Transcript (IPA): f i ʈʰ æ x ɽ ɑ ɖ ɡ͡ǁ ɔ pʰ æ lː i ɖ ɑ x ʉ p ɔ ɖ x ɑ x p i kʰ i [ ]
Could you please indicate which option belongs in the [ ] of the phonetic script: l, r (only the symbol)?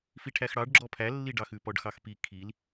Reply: l